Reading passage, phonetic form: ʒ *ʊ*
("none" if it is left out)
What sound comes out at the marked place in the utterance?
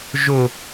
ʊ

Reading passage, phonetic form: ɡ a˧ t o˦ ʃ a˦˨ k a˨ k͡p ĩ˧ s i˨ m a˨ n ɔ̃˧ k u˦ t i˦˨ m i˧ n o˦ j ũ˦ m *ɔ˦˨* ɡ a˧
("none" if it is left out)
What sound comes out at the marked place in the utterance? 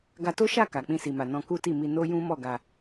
ɔ˦˨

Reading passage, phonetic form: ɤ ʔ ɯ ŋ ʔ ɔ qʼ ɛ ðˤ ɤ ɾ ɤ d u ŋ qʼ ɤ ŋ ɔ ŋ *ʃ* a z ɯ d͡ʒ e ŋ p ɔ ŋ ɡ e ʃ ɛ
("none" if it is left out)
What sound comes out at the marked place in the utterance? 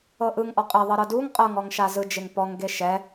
ʃ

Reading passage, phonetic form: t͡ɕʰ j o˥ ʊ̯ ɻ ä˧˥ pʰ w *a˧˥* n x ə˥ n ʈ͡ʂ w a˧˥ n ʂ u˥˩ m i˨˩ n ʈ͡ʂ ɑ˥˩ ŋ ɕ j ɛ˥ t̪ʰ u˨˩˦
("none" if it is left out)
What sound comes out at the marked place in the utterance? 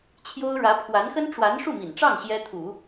a˧˥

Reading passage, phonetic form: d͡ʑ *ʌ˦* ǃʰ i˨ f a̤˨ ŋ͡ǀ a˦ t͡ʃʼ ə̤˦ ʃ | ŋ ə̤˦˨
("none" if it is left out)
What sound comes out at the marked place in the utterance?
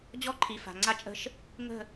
ɔ˦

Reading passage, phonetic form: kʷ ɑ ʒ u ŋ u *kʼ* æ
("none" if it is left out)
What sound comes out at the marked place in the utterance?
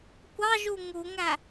ŋ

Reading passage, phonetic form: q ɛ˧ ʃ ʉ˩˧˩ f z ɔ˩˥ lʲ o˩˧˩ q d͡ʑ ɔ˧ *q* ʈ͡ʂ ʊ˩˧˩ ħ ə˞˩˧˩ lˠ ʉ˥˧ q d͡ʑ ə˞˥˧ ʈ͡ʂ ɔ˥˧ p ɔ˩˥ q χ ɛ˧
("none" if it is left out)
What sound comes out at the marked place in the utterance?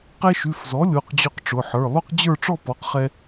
q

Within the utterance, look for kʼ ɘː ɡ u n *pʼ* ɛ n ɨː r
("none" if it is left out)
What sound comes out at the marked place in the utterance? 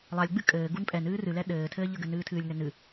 pʼ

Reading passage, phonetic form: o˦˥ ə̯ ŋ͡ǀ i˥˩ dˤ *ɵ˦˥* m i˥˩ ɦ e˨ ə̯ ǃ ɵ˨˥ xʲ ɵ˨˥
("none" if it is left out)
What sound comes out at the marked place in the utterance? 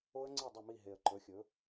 ɵ˥˩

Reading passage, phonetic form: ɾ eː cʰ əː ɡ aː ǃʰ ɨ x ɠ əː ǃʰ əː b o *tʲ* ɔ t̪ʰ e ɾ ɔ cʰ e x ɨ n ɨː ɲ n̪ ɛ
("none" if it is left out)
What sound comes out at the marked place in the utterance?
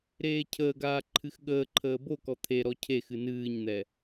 k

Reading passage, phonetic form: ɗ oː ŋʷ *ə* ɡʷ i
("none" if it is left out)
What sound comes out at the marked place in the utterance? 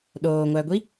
æ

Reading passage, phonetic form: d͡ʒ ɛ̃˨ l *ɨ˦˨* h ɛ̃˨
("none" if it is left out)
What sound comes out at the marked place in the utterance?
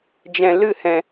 ɨ˦˨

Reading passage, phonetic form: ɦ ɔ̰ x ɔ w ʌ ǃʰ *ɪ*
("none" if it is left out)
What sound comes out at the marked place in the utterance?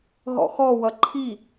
i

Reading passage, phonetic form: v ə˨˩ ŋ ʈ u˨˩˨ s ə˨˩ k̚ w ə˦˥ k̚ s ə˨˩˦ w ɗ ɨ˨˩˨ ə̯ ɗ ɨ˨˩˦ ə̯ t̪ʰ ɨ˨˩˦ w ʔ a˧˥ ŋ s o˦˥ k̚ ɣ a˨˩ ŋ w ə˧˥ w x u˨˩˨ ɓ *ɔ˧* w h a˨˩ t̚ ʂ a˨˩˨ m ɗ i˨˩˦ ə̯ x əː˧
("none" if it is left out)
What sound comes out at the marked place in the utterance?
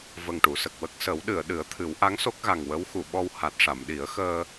ɔ˧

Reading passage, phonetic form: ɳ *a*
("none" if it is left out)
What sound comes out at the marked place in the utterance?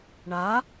a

